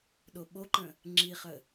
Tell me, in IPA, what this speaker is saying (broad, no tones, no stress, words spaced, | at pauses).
ɗoɓoǃə̃ | ŋ͡ǁiχə